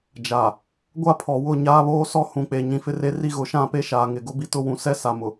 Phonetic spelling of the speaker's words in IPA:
d͡ʒ a˨ | ɡʷ a˦ pʰ ɔ˨ w ʊ˦˨ ɲ aː˦ β oː˦ s ɔ˦ h ũ˨ k͡p e˨ ɲ ĩ˨ f ɪ˦ r e˦ r i˦ ɣ ʊ˨˦ ʃ ã˦˨ p e˦ ʃ aː˨ ŋ ɪ˨ ɡ ʊ˦ b i˦ t ʊ˦ w ũ˨˦ s ɛ˦ s a˨ m ʊ˨

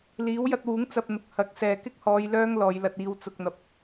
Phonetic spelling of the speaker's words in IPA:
l iː˨˥ w j ɐ˧ t̚ w uː˨˥ ŋ t͡s ɐ˧ p̚ n̪ ʊ˨ k̚ h ɐ˨˥ k̚ s ɛː˨ k ɪ˥ k̚ h ɔː˨˧ j l œː˥ ŋ l ɔː˨˧ j l ɐ˧ t̚ iː˧ w t͡s ʊ˨ k̚ n̪ ɐ˨ p̚

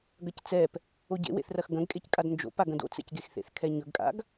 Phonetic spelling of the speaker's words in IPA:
ɡ ɐ c t͡s ɛ p | o ɟ ḛ w ḛ θ r ɐ x ɡ ɐ̃ ɡ kʼ e c kʼ a d n d͡ʒ o̰ p a ɡ ɐ̃ d o̰ t͡s ɛ̰ c ɡ e x θ ḛ θ kʰ ɛ ɲ ɵ ɡ kʼ a̰ ɡ

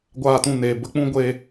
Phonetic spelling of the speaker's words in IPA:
ɡʷ aː˦˨ t ũ˦˨ n eː˨ b ə˦ k͡p ũ˦ ɡʷ e˧

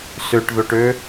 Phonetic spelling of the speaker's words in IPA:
s ø ʈ ð o ʈ ø

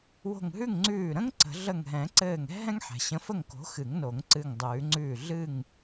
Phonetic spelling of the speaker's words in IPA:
w o̤˧˩ ŋ ɦ ʉ˥˨ ŋ ŋ͡ǀ ʉː˧˩ ɾ ə̃˥ ŋ ǀ ə̤˨˩˦ ɮ ə˧˩ ŋ ɦ ɛ̃˨˩˦ ǀ ɘː˧˩ ŋ ɛ̤˥ ɦ ɛ̃˥ ŋ ħ ɛ̤˩ ɕ ə̃˨˥ f ə˥˨ ŋ k o̤˨˥ x ɨ˨˩˦ ŋ n o˨˩˦ ŋ ǀ ɨ˧˩ ŋ dˤ ʉː˨˩˦ ŋ͡ǀ ʉː˧˩ ɮ ɨ˥˨ ŋ

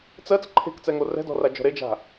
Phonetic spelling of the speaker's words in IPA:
t͡s ɜ t͡s ǃʰ e̤ k t͡s ɛ ŋ o r ɛ̤ d ɔ̤ r a d͡ʒ ɔ̤ ɾ e d͡ʒ a̤

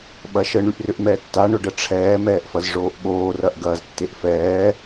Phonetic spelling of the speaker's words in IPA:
ɓ ɐ ʃ ə ɳ y ʔ r ʏ ʔ m ɛː tː a ɳ ʊ ɖ ə ʈ͡ʂʰ ɛː m ɛː ʔ f ɐ z ʐ oː ʔ ɓ oː r ɐ ʔ ɡ ɐː z tː e ʔ f ɛː

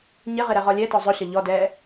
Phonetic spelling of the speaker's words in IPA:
ɲ ɪ ʁ ɪ ɾ ɛ ʁ ɔ lʲ ɛ t ɔ zˤ ʊ ɕ ɐ ʎ ɔ d ɛː

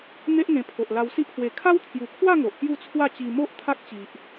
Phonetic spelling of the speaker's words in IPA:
n̪ e˦ ʔ ŋ ẽ˧ pʰ o˨ ʔ l a˧ w s i˦ ʔ h w e˨˩ kʰ a˦ w t̪ʰ j u˨˩ kʰ w a˥˧ ŋ o˨ ʔ k j u˥˧ t͡sʰ w a˥˧ t͡ɕ i˧ m o˦ ʔ t̪ʰ a˦ k̚ t͡ɕ i˨ ʔ

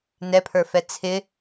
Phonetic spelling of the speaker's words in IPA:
n ɛ pʰ ə˞ f ɛ t͡sʰ ɪ

